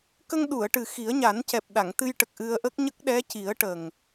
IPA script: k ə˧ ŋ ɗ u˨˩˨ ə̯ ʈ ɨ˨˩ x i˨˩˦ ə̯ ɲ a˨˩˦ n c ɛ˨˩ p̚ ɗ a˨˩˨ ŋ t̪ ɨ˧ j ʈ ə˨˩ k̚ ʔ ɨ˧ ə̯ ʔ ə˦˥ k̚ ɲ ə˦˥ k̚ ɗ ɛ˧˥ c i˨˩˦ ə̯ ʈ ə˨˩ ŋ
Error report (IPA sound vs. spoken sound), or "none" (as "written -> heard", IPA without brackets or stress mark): none